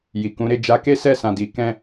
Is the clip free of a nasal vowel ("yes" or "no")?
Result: no